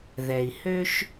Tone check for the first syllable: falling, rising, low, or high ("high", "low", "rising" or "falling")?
low